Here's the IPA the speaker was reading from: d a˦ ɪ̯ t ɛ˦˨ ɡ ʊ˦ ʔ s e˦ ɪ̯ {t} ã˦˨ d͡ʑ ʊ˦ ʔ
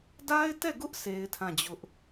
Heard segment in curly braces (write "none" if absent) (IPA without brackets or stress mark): tʰ